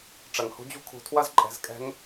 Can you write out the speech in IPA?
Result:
ʈ͡ʂ ɐ˩ ŋ h ṳ˧˥ d͡ʑ ṳ˥ kʰ ṳ˩˧ tʰ w ɐ˥ z ǃʼ ɛ̤˩˧ z kʼ ɛ̤˧˥ ŋ

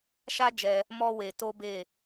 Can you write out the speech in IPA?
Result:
ʃ a˦ d͡ʒ ɛ˧ | m ɔ˦ w e˧ t o˦ b e˦˨

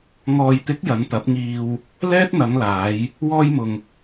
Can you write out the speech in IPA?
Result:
ŋ ɔː˨ j t̪ ɪ˨˥ k̚ j ɐ˨˧ n t̪ ɐ˨˥ p̚ ŋ iː˧ w | l ɛː˥ t̚ n̪ ɐ˨˧ ŋ l aː˨˧ j | w ɔː˧ j m ʊ˨ ŋ

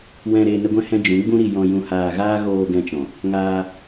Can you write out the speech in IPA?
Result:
w ɛ̃˧ ɾ e˧ n ə˦ ɡʷ ɛ̃˦ h ɛ̃˦ d͡ʒ ũ˨˦ ɡ͡b ũ˦ ɾ i˧ j ɔ̃˧ j ũ˧ h aː˧ ɣ aː˦ ɣ oː˧ ɡ ɛ̃˧ t͡ʃ ɔ̃˨ | ŋ aː˧

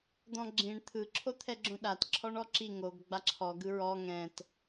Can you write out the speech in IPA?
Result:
d̪ ɔ̃ ɡ͡ǁ ĩ ɳ t̪ʰ ɯ ǁʰ o t̪ʰ ɛ ɡ͡ǁ õ ɗ a t ǁʰ ɔ ɳ ɔ ǁ i ŋ o ɡ ɡ͡b a ǁʰ ɔ ɡ ɯ ɹ ɔ ŋ ɛ̃ t

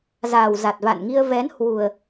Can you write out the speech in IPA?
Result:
z aː˨˩ w z a˨˩ t̚ v a̰˧˨ n ŋ i˧ ə̯ v ɛ˨˦ n h w u˨˩ ə̯

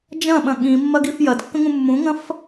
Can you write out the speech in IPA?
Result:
d͡ʒ ɐ̃ ɓ ɐ̃ ɠ ĩ mː ɐ ɡ i f j ɐ d kː ə̃ ŋ ũ mː ũ ŋ ɐ̃ f

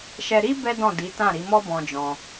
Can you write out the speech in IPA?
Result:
ʃ ɛ˧ ɾ i˦ b ɛ˦ d ɔ̃˦˨ d i˨˦ t ã˦˨ ɾ i˨˦ m ɔ˦ b ɔ̃˧ d͡ʒ ɔ̃˧

